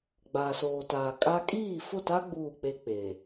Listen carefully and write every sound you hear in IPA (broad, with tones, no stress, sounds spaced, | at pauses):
ɡ͡b aː˨ s oː˨ t aː˨ kʼ a˦ kʼ iː˦˨ f ʊ˦˨ t a˦ ɡ͡b uː˦˨ k͡p e˦ k͡p e˨